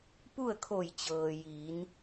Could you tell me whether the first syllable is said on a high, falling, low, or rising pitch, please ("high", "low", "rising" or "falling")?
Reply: falling